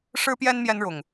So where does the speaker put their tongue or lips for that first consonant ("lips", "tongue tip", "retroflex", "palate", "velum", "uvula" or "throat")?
retroflex